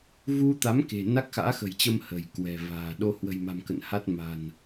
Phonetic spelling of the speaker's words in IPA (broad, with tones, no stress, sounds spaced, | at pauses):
v u˧ t̪ a˨˦ m k e̤˨˩ n a˦˥ k̚ x a̰ː˧˥ x ə̤˨˩ j t͡ɕ ə˧ m h ə̤˨˩ j k w ɛ̤˨˩ v a̤ː˨˩ ɗ o˧ h w ə̤˨˩ j m a̤˨˩ m k ə̰˧˨ n h a˦˥ t̚ m a̤˨˩ n